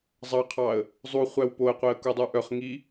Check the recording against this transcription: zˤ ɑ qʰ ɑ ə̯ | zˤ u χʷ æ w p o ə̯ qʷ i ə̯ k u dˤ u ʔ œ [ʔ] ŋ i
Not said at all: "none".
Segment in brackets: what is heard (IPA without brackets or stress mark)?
χ